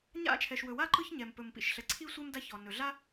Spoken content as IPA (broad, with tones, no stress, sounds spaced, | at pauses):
ɲ a̰˥ t͡ʃʰ ɛ˩ ʃ w ɵ˩ w a˥ ǃ ɯ˥ ç ɲ ɛ˩ m p ɵ˩ m p ḭ˩ ʃ ɬ ɛ˩ ǀʰ i˥ sʷ ɛ˥ m d a˥ ç ɔ˩ n ɵ˩ ɮ a˥